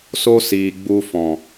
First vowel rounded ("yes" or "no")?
yes